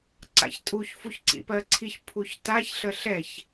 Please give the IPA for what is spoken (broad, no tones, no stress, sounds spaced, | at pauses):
ǀ a̰ ç tʼ u ç f u ç ǀ ḭ p ɜ ǀʰ i ç pʰ u ç t a ç ɬ ə ɬ ɛ ç